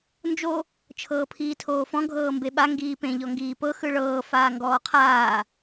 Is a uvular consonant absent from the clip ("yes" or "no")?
no